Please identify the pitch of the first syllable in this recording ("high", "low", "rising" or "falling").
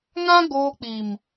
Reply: high